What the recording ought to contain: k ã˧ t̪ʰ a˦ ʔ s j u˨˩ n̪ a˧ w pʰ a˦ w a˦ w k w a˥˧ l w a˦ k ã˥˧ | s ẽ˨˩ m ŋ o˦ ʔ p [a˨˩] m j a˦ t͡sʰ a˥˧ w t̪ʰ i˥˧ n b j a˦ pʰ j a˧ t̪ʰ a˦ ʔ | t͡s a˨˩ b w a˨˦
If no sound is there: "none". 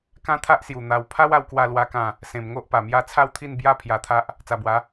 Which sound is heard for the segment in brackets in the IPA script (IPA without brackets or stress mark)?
a˨˩